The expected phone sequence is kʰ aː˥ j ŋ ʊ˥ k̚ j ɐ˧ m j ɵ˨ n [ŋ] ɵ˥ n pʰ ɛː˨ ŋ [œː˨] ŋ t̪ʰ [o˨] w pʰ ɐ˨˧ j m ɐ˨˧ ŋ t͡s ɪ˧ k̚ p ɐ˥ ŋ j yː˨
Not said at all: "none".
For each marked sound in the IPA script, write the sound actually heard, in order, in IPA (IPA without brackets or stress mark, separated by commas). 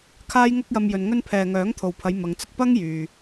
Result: ŋ, œː˨˥, o˨